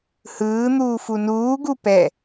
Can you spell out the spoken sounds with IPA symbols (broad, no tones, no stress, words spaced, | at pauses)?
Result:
hɯːn̪uːfu nuːɡu pɛ